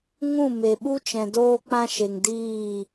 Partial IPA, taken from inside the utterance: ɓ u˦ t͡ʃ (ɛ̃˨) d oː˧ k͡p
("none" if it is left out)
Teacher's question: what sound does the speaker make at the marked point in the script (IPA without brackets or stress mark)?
ɛ̃˨